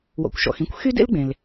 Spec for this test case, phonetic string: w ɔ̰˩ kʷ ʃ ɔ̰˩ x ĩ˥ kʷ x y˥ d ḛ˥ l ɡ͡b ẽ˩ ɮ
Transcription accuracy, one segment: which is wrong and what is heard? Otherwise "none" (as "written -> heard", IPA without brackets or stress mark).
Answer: ɮ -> l